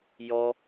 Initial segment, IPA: j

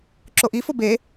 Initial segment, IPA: ǁ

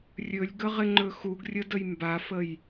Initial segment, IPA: rʲ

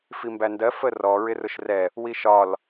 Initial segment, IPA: f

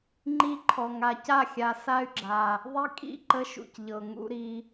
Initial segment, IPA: ŋ͡ǃ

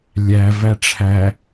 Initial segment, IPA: lʲ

